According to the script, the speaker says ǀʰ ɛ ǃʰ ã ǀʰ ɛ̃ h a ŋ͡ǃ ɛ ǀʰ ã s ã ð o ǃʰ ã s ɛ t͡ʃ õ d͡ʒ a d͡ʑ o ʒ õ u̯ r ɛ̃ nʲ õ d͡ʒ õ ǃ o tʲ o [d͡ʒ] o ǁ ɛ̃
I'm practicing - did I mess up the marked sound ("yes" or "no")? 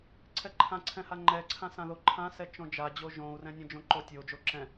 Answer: no